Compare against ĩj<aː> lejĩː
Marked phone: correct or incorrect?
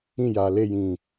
correct